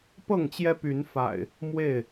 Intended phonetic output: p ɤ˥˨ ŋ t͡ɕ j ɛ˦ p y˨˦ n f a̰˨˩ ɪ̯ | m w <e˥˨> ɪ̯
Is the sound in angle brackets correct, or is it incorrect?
correct